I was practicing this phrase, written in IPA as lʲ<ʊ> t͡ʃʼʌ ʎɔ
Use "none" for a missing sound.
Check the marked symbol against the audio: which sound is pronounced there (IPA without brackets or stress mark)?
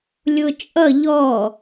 ʊ